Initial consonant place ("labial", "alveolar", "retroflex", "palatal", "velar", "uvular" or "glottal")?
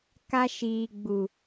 velar